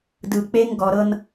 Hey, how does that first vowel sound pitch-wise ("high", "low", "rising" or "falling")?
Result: low